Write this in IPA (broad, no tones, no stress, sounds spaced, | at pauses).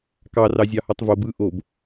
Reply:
k ɑ r ɑ zʲ ɑ h o tˤ v o b ɯ ʔ o b